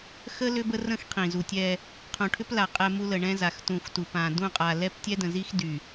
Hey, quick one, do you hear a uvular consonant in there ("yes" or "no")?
yes